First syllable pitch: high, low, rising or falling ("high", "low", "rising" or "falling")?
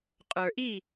low